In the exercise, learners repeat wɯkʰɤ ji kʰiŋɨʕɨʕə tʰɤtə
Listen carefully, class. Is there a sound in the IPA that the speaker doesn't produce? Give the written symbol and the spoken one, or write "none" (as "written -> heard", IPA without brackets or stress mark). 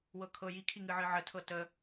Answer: ɯ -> ɤ